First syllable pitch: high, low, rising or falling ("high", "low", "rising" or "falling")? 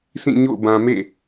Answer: falling